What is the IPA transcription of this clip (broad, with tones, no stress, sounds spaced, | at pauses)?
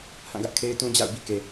h ã˦˨ ɡ ä˦ ʔ kʰ e˦ ɪ̯ t ũ˦ d͡ʑ a̰˦˨ ʊ̯ b ḭ˦˨ k e˨